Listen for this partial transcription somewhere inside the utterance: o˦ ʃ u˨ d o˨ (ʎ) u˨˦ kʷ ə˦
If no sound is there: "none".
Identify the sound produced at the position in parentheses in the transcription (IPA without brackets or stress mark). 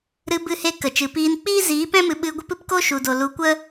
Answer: l